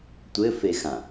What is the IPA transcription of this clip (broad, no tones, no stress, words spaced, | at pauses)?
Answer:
tʷɘfexã